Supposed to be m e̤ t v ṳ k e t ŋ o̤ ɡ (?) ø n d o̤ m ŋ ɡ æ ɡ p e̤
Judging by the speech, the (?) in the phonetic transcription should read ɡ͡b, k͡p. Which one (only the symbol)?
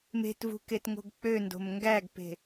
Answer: k͡p